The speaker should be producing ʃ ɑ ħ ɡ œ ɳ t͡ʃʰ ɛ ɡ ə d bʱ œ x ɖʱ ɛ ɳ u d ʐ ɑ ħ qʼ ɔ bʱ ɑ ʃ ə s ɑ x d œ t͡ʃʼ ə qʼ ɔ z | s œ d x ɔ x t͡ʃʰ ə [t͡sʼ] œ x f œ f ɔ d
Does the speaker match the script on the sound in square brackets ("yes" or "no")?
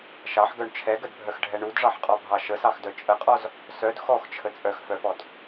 yes